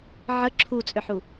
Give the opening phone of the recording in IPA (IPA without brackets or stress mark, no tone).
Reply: ʕ